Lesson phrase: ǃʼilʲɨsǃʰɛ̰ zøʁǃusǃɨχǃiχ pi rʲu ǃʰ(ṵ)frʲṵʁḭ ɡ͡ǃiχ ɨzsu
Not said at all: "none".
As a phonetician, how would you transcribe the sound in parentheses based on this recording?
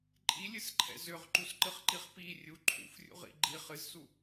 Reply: ṵ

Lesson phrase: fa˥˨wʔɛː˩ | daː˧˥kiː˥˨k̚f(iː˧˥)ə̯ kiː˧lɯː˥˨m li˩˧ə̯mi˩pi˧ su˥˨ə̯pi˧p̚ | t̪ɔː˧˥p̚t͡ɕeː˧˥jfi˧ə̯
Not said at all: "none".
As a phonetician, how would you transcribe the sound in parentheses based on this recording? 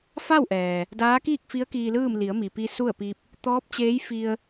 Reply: i˧˥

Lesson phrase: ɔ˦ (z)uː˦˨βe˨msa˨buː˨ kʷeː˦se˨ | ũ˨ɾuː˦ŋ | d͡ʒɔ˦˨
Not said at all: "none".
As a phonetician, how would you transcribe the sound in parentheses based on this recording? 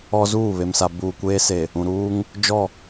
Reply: z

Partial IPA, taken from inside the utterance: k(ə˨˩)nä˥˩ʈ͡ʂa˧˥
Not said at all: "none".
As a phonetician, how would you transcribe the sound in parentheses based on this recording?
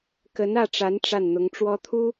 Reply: ə˧˥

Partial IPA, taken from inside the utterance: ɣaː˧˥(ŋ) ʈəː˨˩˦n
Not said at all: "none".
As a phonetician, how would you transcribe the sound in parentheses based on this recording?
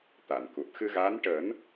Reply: n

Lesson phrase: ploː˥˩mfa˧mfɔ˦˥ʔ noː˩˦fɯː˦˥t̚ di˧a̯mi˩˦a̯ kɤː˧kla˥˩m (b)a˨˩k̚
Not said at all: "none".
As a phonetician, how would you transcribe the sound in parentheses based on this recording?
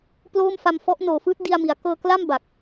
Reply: b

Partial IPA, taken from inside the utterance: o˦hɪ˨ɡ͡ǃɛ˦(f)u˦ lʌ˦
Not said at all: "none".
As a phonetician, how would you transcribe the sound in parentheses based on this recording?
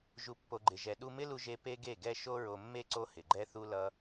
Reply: θ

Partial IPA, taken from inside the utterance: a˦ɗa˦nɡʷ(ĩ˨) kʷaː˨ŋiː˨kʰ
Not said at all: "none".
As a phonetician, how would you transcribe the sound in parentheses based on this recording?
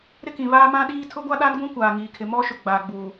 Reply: ĩ˦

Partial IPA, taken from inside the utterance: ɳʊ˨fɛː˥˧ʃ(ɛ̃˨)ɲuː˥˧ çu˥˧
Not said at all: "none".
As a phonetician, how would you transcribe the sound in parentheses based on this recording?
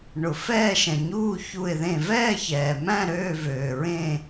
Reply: ɛ̃˨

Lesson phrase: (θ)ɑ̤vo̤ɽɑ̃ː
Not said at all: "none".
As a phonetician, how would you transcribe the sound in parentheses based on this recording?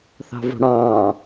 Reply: θ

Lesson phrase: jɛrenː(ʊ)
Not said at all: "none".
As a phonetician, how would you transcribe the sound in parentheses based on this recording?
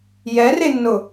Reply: ʊ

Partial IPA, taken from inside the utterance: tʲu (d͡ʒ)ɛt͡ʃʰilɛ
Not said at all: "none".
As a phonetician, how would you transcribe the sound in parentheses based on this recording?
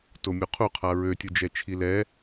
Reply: d͡ʒ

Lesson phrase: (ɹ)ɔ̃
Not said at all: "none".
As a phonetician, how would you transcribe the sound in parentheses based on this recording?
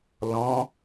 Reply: l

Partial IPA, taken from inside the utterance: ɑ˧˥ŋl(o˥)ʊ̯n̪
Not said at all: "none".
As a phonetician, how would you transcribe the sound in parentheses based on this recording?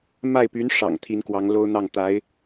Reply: o˥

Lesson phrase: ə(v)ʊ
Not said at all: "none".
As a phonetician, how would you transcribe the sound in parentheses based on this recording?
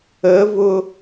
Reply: v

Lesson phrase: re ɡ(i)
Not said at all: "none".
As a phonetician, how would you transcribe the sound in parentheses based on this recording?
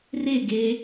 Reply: e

